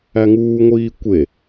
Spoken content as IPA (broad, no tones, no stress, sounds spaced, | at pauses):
æ ŋ uː ŋʷ iː kʷ e